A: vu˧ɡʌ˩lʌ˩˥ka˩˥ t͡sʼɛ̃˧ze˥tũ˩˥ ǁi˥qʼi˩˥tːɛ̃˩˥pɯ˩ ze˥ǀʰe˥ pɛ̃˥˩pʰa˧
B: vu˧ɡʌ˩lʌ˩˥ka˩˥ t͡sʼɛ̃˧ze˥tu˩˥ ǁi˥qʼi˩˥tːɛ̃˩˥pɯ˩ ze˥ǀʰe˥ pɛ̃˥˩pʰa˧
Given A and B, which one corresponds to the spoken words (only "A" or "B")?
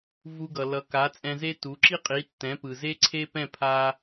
B